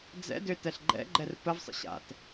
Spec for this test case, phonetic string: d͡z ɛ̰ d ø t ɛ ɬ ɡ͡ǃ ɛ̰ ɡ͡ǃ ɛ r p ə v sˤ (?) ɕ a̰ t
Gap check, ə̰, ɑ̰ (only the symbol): ə̰